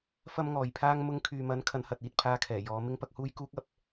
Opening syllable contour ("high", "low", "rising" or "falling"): high